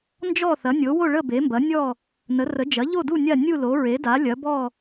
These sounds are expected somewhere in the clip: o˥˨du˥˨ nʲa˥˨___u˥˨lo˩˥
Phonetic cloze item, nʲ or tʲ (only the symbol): nʲ